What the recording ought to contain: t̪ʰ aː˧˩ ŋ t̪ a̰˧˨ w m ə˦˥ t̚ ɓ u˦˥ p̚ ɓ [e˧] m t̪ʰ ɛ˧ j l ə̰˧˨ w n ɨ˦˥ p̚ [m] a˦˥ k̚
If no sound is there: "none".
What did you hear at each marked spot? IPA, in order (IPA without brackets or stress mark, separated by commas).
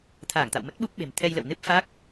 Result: e̤˨˩, f